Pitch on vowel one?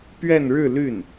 falling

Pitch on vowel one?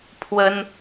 high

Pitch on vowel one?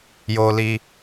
low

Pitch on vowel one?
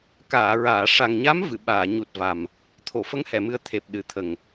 low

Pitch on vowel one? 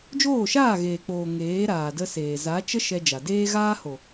falling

